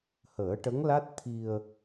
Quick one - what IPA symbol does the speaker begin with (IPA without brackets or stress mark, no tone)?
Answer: h